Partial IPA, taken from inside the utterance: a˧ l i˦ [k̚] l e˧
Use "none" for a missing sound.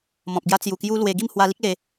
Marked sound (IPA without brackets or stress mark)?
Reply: k̚